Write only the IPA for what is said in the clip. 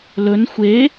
lɵn xʷe

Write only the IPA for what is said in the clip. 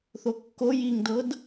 θokːo jiŋdɤd

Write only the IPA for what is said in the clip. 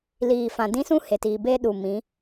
liː˨fã˨dĩ˦sũ˦ he˨ tiː˨ be˦ɗu˨ mĩ˨˦

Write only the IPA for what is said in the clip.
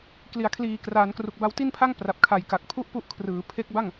kli˩˦a̯ kʰliː˨˩kraː˩˦nkru˨˩k̚ ba˧wti˥˩npʰa˥˩ŋ pra˨˩p̚kʰa˨˩jka˨˩k̚pʰu˥˩ʔ pu˥˩ʔkʰrɯː˩˦ pʰe˦˥k̚ba˥˩ŋ

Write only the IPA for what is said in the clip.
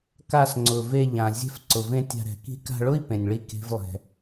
ka˧sŋ͡ǀʊ˨ ve˧ʎã˨ zʲɛ̤˧fǀʊ˨vẽ˧ tʲa̤˧ɾɛ̤˨ki̤˦ ka̤˧ɭʊ˦i̯ pẽ˨nʲɭi˧ ke̤˦vlˠɛ̤˧

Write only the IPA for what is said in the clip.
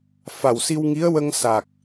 fa˨˩wsi˧wŋi˧˥ə̯ wə˧ŋsa˨˩k̚

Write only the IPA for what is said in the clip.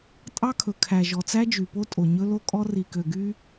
tʼɑ˦kʰɵ˨kʰæ˨ ʒɔ˨t͡sæ˦d͡ʒy˨po˦ tʼo˨ɲɵ˦lo˦kʼɔ˦ ri˨kø˨ɡy˦

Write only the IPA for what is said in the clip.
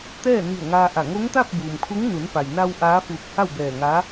t̪ɛː˥˨ni˧˩ə̯ŋaː˧ʔa˧˩ ŋo˧˥ŋt̪a˥˨p̚buː˩m kʰu˧˥ŋ nu˩˧npa˩jna˧w ʔaː˧˥fuː˧˩k̚ha˥˨w bɛː˧˩ŋaː˧˥

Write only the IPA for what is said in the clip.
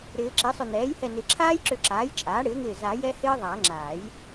ɾɪː˨˩˦ǁi˩˥sˤʏ˧˩ n̪ɛː˩˥jhɛ˧˩nɪ˨˩˦ ǁʰaː˦˥jǁʏ˧˩ǁaː˩˥j t͡ʃʼaː˩˥ɽɪː˩˥ŋɪː˧˩ za˨˩˦ jɛ˦˥hɪː˦˥ ðˤa˨˩˦ŋ͡ǁaː˨˩˦j

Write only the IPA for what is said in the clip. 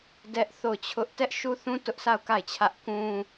dɛ˦ʔθo˦˨ʊ̯t͡ɕʰʊ˦ʔ tɛ˦ʔʃu˦θũ˦ tʊ˦ʔsʰa˦˨ʊ̯ ka˦˨ɪ̯t͡ɕʰä˦ʔ kũ˦

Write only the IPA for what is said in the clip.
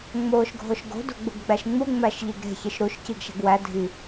ŋ͡moːʃɡʱoʃɡo̤ do̤ɡ͡buɡɡ͡bæʃŋ͡mu ŋ͡mæʃʎeɡɾe̤ çiʃɾuʃ ciɡʃæ̤ɡwæ dʱi

